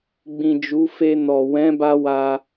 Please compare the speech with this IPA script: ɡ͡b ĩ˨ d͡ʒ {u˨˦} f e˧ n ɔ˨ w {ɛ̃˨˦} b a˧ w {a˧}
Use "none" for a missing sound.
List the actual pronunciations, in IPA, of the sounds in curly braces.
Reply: u˨˦, ɛ̃˨˦, a˧

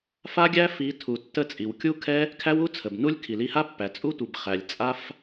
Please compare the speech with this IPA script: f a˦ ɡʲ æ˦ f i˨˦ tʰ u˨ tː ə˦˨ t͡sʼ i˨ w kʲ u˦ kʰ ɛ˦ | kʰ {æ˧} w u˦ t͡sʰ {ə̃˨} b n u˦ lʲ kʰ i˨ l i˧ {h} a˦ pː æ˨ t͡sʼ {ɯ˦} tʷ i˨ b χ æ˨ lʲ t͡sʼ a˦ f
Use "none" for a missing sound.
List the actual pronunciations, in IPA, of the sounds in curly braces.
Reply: æ˦, ə˨, h, u˦

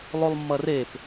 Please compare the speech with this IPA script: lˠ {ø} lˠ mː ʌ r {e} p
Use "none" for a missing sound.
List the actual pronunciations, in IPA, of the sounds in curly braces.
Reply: u, e

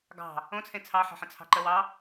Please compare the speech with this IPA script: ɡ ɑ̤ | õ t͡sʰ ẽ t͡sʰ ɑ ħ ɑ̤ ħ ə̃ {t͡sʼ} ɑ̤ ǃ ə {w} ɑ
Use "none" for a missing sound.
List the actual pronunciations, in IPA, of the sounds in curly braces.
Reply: t͡sʰ, w

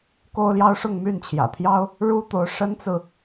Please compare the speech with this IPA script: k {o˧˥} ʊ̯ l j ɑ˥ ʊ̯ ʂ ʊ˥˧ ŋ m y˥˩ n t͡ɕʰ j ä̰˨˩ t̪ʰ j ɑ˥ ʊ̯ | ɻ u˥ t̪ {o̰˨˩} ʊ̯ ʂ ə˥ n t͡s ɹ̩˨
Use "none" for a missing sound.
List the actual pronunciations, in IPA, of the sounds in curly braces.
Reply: o˥, o˧˥

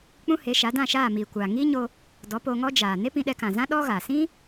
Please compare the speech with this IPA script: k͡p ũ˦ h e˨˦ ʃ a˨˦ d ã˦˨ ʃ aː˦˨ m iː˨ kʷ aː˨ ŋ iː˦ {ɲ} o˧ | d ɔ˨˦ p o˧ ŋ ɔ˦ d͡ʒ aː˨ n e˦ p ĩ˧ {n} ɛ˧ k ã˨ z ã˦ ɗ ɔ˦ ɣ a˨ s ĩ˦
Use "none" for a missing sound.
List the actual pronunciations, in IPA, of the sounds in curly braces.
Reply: ɲ, ɗ

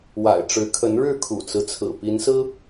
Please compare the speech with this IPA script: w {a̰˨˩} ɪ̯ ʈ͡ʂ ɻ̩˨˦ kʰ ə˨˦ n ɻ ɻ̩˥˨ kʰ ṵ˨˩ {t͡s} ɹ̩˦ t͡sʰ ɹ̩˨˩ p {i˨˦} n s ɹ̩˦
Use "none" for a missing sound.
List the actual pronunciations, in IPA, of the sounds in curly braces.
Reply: a̰˨˩, t͡s, i˨˦

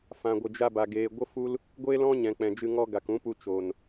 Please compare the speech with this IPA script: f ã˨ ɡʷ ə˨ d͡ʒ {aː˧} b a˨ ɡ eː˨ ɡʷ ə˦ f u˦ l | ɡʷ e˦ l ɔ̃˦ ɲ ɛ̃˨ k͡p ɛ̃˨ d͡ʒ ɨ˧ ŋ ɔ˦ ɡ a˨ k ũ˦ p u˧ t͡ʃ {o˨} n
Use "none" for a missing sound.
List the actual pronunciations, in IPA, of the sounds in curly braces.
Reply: a˧, o˨

